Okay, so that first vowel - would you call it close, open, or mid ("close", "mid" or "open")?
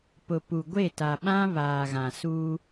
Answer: close